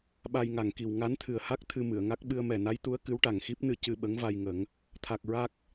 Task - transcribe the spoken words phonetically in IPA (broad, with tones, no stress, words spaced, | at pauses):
ɓa˧jŋa˨˩ŋki˨˩w ŋa˧˥nt̪ʰɨ˨˩ə̯ha˦˥k̚ t̪ʰɨ˧mɨ˨˩˨ə̯ŋa˦˥k̚ ɓɨ˧ə̯mɛ˨˩na˧˥jt̪u˧˥ə̯ kɨ˧˥wʈa˨˩ŋxi˦˥p̚nɨ˧ cɨ˧ɓə˧˥ŋva˧j ŋə˨˩˦ŋ | t̪ʰa˨˩k̚ ɹa˦˥k̚